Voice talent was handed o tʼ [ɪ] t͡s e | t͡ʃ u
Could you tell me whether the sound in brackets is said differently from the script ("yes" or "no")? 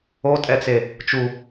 yes